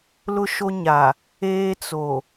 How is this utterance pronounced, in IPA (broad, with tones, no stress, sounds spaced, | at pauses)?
l ʊ˦ ʃ o˦ ɲ a˨ | eː˦ t͡s o˨